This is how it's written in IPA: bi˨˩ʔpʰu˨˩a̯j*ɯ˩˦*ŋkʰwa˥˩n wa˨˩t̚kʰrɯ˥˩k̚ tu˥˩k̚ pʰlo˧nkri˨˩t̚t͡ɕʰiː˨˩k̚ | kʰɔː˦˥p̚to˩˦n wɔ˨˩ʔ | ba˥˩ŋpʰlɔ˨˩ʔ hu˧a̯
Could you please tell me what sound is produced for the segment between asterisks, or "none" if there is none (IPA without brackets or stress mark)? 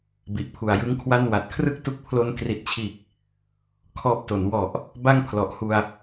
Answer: ɯ˦˥